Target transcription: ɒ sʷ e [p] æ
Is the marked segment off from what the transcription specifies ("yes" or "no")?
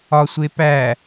no